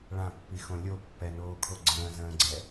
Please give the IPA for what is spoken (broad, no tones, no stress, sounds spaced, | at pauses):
ɭ ã pː i x õ lʲ o pː ɛ n oː kʰ o ɡ͡ǀ ə̃ː z ə̃ː ɡ͡ǀ ɛ